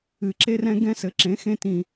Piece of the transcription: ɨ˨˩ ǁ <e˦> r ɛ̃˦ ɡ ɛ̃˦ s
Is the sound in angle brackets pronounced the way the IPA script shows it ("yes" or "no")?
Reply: yes